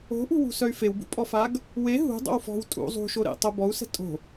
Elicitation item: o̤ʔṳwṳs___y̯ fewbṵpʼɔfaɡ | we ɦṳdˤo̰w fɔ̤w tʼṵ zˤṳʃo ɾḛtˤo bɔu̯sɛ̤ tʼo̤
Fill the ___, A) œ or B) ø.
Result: A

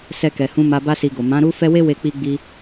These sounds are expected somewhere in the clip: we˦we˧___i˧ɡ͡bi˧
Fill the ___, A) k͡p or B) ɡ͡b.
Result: A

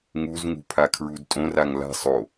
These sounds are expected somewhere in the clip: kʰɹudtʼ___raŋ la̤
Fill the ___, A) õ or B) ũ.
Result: A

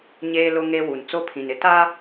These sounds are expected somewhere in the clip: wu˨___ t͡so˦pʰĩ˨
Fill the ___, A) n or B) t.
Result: A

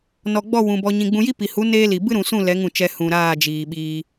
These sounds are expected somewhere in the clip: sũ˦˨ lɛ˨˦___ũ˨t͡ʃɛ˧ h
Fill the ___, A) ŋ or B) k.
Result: A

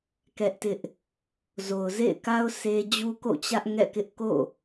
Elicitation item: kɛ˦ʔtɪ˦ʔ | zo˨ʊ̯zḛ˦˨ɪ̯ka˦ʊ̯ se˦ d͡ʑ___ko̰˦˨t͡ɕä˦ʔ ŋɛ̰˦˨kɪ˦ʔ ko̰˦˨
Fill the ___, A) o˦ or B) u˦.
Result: B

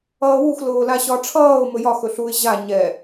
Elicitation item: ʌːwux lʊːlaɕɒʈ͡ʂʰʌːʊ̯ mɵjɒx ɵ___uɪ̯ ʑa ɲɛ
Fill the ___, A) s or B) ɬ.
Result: B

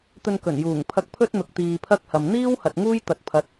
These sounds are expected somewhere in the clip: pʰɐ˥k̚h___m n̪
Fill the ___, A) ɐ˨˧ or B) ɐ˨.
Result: B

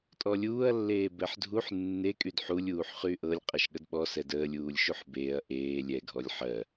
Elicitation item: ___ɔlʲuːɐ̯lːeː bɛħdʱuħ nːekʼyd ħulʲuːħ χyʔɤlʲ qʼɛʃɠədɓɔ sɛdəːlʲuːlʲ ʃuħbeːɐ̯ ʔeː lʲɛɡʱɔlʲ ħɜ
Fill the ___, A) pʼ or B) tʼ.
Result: B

